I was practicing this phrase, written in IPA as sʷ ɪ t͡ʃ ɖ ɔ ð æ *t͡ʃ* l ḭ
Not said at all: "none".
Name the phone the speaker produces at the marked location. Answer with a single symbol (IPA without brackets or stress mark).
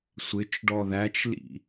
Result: t͡ʃ